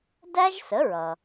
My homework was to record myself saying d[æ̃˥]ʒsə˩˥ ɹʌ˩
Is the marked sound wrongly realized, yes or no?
yes